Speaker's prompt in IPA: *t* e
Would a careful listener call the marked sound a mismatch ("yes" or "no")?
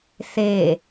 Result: yes